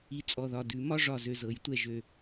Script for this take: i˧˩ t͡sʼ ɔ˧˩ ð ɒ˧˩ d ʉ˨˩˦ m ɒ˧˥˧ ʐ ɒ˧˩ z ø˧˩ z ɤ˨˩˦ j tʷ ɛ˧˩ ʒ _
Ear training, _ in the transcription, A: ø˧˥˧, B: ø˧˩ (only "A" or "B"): B